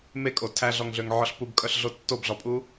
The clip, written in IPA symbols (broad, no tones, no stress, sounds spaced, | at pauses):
m e kʼ o tʰ æ ɮ ɔ ŋ ɮ ø ŋ ʕ ɔ ɬ p u b kʼ œ ɬ ɮ o tː o b ɮ ɔ pʼ u